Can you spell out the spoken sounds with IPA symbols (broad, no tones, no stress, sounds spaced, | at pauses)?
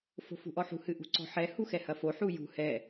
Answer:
f o̤ f ṳ ʔ ɔ ħ ṳ h ɨ ʔ ṳ ǀ ɔ̤ ħ ɛ h u x ɛ h ɐ f o ħ u j ṳ h ɛ